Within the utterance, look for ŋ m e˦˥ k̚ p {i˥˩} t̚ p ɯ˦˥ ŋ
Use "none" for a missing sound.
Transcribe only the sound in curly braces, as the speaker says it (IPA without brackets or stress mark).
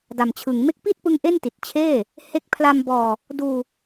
i˥˩